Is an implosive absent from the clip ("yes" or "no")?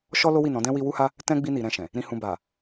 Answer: yes